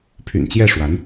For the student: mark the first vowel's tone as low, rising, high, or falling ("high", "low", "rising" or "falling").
low